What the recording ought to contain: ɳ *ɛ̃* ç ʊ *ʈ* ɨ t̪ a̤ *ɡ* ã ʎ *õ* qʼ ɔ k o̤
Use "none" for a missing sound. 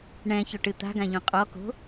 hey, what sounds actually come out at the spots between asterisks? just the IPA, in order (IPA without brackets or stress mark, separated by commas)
ɛ̃, ʈ, ɡ, õ